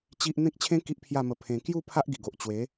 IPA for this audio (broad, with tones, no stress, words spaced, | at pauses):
t͡ɕi˦ʔ n̪ẽ˦k̚t͡ɕʰẽ˦ ki˦ʔpʰja˥˧mə˧ pʰẽ˧ kju˥˧ pʰa˦ʔɡi˨˩ɡo˨ʔ t͡ɕwe˨˦